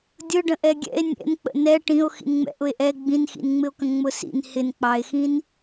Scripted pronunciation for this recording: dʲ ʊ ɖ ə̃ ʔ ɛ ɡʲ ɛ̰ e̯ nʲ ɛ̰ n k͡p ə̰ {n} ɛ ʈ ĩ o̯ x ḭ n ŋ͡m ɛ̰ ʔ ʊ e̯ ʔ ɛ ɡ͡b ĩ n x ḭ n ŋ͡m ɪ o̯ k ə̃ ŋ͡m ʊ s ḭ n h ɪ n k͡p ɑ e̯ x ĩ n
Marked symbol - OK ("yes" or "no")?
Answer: yes